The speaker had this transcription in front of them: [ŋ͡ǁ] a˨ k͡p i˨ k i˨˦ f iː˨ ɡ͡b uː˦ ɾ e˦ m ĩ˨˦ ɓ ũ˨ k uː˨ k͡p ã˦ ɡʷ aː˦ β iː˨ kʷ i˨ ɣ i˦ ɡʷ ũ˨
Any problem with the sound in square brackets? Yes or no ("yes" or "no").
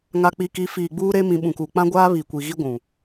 yes